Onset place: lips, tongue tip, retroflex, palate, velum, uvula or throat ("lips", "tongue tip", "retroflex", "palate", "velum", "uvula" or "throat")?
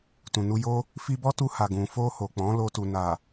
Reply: tongue tip